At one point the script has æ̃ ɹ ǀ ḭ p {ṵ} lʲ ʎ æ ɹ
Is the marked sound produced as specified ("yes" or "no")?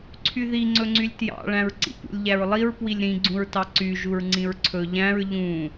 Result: yes